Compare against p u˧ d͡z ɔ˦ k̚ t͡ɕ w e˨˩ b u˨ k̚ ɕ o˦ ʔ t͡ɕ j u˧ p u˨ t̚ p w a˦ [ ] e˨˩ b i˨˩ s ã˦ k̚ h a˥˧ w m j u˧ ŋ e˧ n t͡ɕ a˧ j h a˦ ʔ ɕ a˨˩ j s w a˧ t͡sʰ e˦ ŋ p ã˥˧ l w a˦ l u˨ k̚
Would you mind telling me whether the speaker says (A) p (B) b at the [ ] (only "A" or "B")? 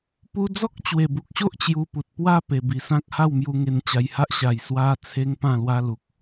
A